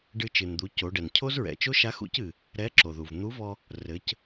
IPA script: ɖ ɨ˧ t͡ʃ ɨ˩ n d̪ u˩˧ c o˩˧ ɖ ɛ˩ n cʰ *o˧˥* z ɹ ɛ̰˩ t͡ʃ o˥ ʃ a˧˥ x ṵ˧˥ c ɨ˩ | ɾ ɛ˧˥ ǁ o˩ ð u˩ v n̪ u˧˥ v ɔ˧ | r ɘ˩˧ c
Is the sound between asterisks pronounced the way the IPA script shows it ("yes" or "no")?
no